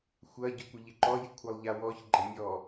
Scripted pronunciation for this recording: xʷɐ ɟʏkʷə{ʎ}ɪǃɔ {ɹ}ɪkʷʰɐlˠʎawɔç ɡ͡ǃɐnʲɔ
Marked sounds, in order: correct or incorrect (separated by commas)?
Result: correct, incorrect